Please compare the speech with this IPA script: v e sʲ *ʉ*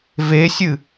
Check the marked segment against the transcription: incorrect: ɨ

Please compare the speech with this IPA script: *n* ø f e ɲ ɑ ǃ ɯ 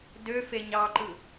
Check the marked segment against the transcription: incorrect: d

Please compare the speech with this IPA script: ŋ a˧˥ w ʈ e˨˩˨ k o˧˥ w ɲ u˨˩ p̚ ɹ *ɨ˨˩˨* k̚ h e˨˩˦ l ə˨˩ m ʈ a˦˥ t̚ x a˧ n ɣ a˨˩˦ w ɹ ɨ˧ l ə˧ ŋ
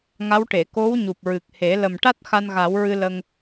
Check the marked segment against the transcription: incorrect: ɨ˨˩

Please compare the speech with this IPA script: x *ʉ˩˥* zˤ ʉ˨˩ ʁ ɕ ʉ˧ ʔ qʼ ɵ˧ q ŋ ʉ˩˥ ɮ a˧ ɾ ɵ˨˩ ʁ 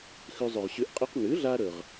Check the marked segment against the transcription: incorrect: ʉ˧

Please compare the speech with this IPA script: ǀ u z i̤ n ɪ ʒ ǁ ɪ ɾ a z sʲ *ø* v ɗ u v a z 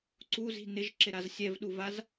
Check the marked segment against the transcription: incorrect: ɛ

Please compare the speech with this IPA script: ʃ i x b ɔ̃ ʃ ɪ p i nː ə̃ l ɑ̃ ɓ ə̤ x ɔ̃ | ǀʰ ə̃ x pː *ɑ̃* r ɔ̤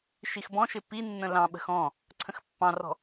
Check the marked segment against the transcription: correct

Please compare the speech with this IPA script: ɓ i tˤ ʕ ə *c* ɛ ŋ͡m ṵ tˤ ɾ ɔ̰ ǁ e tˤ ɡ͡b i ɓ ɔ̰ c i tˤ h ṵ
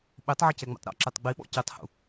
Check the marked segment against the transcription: correct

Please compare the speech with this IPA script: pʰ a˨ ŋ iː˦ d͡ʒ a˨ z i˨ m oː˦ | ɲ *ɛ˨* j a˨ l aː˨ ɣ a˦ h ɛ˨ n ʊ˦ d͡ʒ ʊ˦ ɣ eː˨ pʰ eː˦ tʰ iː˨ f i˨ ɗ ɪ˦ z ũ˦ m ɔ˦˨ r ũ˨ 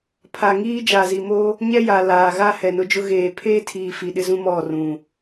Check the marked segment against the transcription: incorrect: ɛ˦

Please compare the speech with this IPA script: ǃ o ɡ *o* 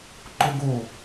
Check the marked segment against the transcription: correct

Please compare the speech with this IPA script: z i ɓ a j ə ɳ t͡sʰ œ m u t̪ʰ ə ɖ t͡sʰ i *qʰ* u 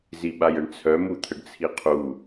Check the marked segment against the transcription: correct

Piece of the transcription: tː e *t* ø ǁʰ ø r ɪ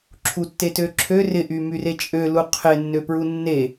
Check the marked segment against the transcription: correct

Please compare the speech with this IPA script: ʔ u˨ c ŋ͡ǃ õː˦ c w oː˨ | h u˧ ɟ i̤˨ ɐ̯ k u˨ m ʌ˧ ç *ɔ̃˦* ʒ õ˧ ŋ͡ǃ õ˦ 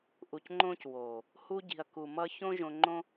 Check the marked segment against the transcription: incorrect: õ˦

